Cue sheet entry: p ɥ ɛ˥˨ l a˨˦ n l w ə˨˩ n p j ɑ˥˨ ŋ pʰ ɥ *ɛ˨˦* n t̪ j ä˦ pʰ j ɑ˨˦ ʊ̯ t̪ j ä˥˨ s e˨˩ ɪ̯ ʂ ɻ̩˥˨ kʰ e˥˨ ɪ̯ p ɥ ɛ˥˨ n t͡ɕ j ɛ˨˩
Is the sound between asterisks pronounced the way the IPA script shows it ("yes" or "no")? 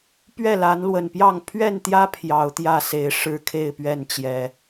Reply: no